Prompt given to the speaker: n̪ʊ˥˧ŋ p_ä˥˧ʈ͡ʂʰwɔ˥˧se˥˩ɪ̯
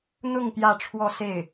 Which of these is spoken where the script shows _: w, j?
j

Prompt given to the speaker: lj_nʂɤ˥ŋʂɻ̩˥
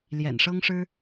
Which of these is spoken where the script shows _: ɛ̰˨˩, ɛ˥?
ɛ̰˨˩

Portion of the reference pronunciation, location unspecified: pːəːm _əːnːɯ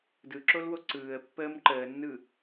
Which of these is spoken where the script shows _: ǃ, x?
ǃ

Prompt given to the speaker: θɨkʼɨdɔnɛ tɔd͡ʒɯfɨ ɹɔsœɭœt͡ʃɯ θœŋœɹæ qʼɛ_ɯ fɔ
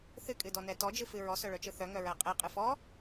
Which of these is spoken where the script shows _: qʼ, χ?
qʼ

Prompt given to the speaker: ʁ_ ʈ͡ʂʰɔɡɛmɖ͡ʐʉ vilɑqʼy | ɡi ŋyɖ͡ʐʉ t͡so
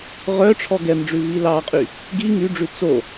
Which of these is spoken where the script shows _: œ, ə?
œ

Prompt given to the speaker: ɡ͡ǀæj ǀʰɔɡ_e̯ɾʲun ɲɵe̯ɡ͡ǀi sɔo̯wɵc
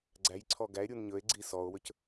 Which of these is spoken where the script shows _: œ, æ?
æ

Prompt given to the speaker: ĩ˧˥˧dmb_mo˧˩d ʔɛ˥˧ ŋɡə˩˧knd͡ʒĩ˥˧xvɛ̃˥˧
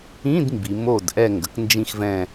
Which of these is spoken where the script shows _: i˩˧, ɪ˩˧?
i˩˧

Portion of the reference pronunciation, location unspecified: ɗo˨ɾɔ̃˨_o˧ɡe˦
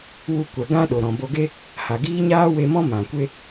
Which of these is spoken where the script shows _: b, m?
b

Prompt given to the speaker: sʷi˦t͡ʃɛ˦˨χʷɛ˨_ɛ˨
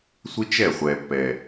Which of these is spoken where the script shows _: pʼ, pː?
pː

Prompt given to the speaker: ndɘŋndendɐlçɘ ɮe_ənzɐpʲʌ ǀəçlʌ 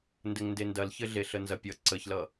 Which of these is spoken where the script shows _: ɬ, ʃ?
ɬ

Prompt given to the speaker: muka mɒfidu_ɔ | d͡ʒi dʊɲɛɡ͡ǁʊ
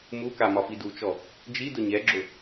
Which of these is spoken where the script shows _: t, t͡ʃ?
t͡ʃ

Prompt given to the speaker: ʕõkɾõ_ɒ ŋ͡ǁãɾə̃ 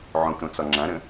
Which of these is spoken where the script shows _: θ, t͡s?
t͡s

